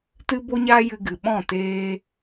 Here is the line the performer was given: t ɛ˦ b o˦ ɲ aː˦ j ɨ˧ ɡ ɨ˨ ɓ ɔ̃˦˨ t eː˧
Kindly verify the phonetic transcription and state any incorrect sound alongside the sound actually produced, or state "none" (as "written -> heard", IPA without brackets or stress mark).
ɛ˦ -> ɨ˦